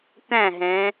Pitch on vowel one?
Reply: falling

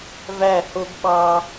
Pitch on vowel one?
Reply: falling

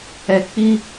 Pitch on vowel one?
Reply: low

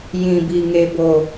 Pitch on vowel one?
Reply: low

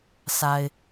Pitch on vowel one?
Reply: low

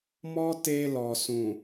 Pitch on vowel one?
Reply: high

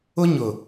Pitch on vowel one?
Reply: high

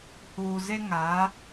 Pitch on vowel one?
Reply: low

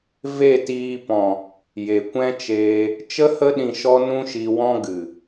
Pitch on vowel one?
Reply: falling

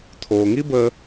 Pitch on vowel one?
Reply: low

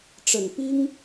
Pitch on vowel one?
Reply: low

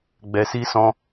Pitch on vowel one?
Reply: low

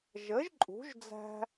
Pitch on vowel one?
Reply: rising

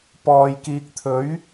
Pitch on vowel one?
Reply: low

